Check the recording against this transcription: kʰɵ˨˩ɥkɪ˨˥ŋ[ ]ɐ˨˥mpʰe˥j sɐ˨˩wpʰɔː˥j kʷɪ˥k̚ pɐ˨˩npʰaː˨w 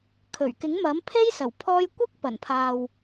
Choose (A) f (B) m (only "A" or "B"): B